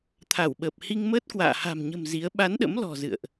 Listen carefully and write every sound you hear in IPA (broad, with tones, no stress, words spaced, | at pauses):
t̪ʰa˧˩wɓəː˨˩p̚ hi˧ŋməː˦˥t̚kwa̰ː˧˨ ha̤˨˩mɲə̤˨˩m zi˨˦ə̯ ɓa˨˦nɗə̰˧˥mlɔ̤˨˩ zɨ̰˧˨ə̯ʔ